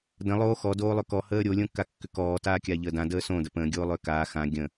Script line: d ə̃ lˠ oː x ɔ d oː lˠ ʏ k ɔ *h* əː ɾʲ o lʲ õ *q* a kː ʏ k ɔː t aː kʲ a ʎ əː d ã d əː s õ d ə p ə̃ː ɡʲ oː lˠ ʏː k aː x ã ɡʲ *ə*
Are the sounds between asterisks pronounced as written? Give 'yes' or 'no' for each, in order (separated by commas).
yes, no, no